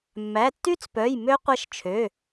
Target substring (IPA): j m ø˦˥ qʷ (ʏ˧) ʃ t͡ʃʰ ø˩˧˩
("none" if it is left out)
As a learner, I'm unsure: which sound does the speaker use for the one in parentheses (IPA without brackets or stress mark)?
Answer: ɛ˧